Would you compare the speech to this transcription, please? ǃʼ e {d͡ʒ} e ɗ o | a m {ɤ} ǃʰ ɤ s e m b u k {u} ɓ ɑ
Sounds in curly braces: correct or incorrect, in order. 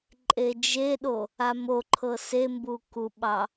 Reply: correct, incorrect: o, correct

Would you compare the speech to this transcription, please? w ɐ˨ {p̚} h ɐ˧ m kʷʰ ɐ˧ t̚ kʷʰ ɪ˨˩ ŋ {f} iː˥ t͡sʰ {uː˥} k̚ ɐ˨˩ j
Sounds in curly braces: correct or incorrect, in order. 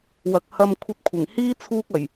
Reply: incorrect: k̚, incorrect: h, correct

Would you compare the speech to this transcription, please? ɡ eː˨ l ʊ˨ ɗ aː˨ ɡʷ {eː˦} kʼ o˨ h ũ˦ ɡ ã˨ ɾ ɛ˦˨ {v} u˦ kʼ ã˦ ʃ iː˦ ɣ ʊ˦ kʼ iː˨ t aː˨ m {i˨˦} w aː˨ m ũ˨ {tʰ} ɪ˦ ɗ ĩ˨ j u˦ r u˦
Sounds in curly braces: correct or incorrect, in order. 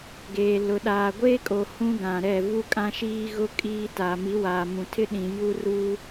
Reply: correct, correct, correct, correct

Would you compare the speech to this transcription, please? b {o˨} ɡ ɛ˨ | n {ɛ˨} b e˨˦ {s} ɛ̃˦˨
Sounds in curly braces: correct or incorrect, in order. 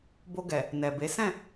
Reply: incorrect: o˧, correct, correct

